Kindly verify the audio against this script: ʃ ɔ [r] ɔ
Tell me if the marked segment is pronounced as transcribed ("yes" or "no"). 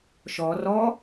yes